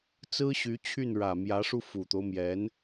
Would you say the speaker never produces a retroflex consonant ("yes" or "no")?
no